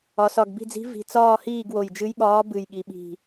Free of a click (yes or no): yes